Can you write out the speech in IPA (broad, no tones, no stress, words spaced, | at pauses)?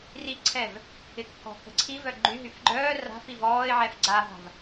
riǀʰɛv | ɪkːɔ̤kə̤ ǀʰivœ ɡ͡ǃyɦyf ɡ͡ǃœː ra̤fiv ɔːɪ̯ʕɛf ɡ͡ǀaɦa̤v